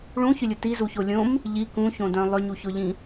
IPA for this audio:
ɭ ũ ç ʏ lʲ ʊ t i z u ç o lʲ õ m | ʎ i k ũ ç õ d œ̃ lˠ ʏ ɲ u ç ʊ ʎ ĩ

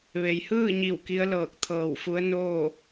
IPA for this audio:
ʋ e˩˧ j h ɯː˥˨ ɲ i˧˩ w k i˧˥ ə̯ l ɤː˧˩ k̚ t̪ʰ ɤː˧˩ w f u˧˥ ə̯ n oː˥˨

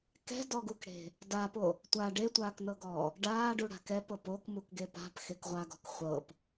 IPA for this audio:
k ɛ̤ d ɔ ɡ u k ɽ e̤ | d a p o | tʷ a ɖ e tʷ aː k n ɤ ɡ ɔː | ɖ aː ɖ u ɽ a̤ k ɛ p ɤ p o k m u k ɡ e p a̤ p x e k ʁʷ a ɡ ɔ̤ k χʷ ɤ p

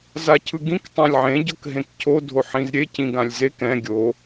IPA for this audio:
z a cʰ ɯ ɡ ĩ k tˤ ã lʲ ʕ ẽ ɟ ɤ k ɦ ẽ k cʰ o dʱ o ħ ĩ z ɾʲ e c ĩ ɡ ã lʲ z e k ɛ̃ ɡʲ o

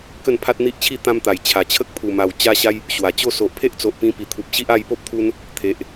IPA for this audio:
k ə˥˧ n pʰ a˦ t̚ n̪ i˦ ʔ t͡ɕʰ i˥˧ t̪ ã˧ m t̪ a˨˩ j t͡ɕʰ a˨˩ t͡ɕʰ ə˦ k̚ pʰ u˨˩ m a˨˩ w t͡ɕ a˧ ɕ a˧ j | ɕ w a˨˩ t͡ɕ o˥˧ s o˨ ʔ pʰ e˦ ʔ t͡s o˨ ʔ p ĩ˧ p i˨˩ t̪ʰ u˨ p̚ ɕ i˦ ʔ a˧ j p o˦ p̚ t̪ʰ u˧ n | t̪ʰ e˨ ʔ

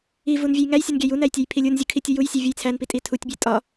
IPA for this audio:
i v u n vʲ æ j ŋ æ j sʲ ɒ n ɡʲ æ j u n æ j tʲ æ j pʰ i lʲ u n zʲ u kʰ i tʲ o j u j sʲ e vʲ u j t͡sʰ æ n p i tʼ i tʰ u tʲ bʲ e tʼ ɒ

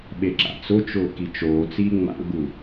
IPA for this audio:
ɓ e ǁ a̰ t͡s ʊ t͡ʃ ʊː k i t͡ʃ oː t͡s iː ŋ͡m a̰ ɡ͡b u

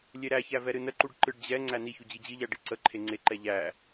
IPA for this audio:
lʲ e ɾ æ ç æ v ɛ ɾ ɨ n ə ǃ u ɖ ǃ ɨ ɖ d͡ʑ ɛ ŋ͡ǀ æ n i ç u d͡ʑ i d͡ʑ i ʎ æ ɖ i ǀ ə ǃʰ e ŋ͡ǀ e ǃ ɛ ʎ æ

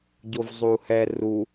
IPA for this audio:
ɟ o v zˤ u h ɛ r u

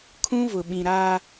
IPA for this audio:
kʰ ũ˦ v ʊ˨ ɓ ĩ˨ ɾ aː˦

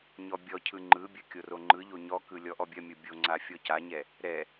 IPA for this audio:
ɲ ɔ bʲ ɔ cʰ ɯ ŋ͡ǃ ɯ bʲ ɐ kʲ o r o ŋ͡ǃ ɯ ʎ o ɲ ɔ k ɯ lʲ ɔ ʔ ɔ bʲ ɐ mʲ o bʲ o ŋ͡ǀ a fʲ ɔ c a ɲ ɛ | ɾ ɛ

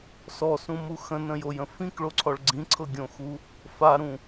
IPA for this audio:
s ɔ s ũ m u x ə̃ n ə̃ j o j ə̃ f ĩ k ɭ o ǀʰ ɔ ɭ ɡ͡ǀ ĩ ǀʰ ɤ ɡʲ õ x u | f a ɾ ũ

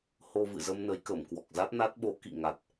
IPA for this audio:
h o˧ v ɨ̰˧˨ z ə˧ m n ə˨˦ j k ə˧˩ m k w ɔ˨˩ k̚ z a˦˥ t̚ n a˦˥ t̚ ɓ o˨˦ k ḭ˧˨ ŋ a˨˩ t̚

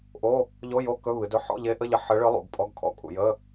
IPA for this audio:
ʔ o˧˥˧ | ʎ o˧˥˧ j o˧˥˧ k ɵ˧˥˧ β ɨ˩˧ d ɵ˧˥˧ ħ ɔ̰˧˥˧ ʎ e˧˥ ʔ ə˧˥˧ ʎ ə˧˥˧ ħ ə˧˥ ɭ ɨ˧˥ lˠ ṵ˩˧ ɡ pʼ ɔ˧˥˧ ɡ kʰ ɔ̰˧˥˧ kʼ ṵ˩˧ j ə˧˥˧

